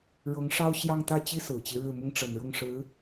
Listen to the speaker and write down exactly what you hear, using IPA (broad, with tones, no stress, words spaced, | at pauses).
ɻɤ˧˥ŋʂɑ˥ʊ̯ ɕjɑ˥˧ŋt̪ä˥˩t͡ɕi˥ sɹ̩˨˩t͡ɕi˦ɻɻ̩˥˩ mʊ˥ŋʈ͡ʂə˨˩nɻʊ˥˩ŋʂɻ̩˧˥